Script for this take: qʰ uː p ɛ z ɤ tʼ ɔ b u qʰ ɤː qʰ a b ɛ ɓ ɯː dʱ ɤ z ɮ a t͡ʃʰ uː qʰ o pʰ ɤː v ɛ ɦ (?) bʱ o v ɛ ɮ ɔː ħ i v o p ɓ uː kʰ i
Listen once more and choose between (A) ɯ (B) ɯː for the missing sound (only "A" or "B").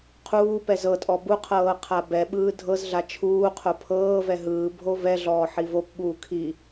B